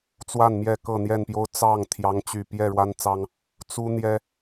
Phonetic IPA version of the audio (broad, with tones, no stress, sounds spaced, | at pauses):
t͡s w a˥˨ n m j ɛ˥˨ k ɤ˥˨ n̪ j ɛ˥˨ n p j o˦ ʊ̯ t͡s ɑ˥˨ ŋ t̪ʰ j ɑ˦ ŋ t͡ɕ y˥˨ p j ɛ˥˨ ɻ w a˦ n t͡s ɑ˦ ŋ | t͡s u˦ n̪ j ɛ˦